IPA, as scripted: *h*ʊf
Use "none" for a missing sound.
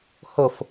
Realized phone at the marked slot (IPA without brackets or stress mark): h